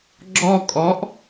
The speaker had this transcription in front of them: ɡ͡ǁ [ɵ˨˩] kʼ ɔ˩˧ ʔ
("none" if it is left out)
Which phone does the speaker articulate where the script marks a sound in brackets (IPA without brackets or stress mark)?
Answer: ɔ˨˩